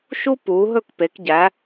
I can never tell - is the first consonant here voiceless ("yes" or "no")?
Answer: yes